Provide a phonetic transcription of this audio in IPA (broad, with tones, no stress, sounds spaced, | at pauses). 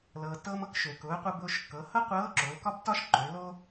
l ɤː˩ t ɤː˧ m ɤ˧ k ʃ ø˩ k ʊː˩˧ qʷ ɤ˧ b ʊː˧ ʃ kː ɤ˩˧ h ɤ˥ qʷ ɤː˧˥ ǁ ʊː˩˧ l k ɒ˥ b t ɒ˥ ʃ ǃ ø˩˧ l o˥